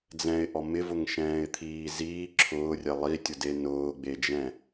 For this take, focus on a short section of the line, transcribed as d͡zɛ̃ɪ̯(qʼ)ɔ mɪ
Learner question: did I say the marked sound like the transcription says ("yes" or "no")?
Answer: no